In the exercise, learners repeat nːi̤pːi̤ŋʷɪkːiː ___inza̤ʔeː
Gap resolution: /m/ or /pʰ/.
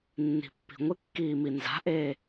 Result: m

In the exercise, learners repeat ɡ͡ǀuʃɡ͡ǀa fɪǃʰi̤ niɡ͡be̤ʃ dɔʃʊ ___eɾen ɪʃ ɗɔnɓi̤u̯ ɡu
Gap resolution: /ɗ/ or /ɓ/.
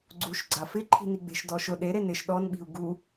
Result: ɗ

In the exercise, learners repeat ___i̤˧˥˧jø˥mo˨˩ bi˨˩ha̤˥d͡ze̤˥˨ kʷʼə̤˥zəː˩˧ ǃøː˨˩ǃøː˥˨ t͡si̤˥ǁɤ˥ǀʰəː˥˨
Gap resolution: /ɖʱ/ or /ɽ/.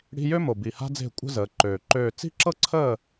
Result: ɽ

